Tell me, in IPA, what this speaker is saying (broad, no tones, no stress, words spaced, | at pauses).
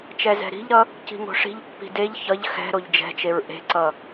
t͡ʃɛzɛ̤ɾi̤ʎɾʌ | ci̤ŋo̤ʂi̤ʎpːi̤ deʎ çʌʎ xɛ̤ ɾoʎd͡ʒɛ̤t͡ʃeɹ ʔe̤ǀʌ